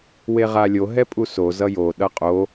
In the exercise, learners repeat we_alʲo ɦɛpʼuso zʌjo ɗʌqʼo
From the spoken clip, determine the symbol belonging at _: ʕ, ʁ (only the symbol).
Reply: ʁ